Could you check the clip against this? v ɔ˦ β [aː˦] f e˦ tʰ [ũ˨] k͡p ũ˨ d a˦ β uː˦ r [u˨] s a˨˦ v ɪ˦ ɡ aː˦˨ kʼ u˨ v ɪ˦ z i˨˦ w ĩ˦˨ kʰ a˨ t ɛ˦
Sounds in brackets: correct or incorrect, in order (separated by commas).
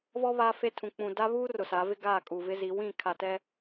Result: correct, correct, incorrect